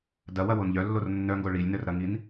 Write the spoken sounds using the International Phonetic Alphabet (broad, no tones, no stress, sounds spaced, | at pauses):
d ɐ w ɐ w o n ʎ œ lː o r nː œ ŋ ɡ o ɭ i lʲ n œ r ɾ ɐ ŋ i n